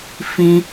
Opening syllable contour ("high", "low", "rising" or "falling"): high